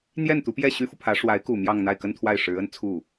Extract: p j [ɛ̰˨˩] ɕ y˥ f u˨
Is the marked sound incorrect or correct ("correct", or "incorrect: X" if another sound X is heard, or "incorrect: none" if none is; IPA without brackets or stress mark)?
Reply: incorrect: ɛ˥˩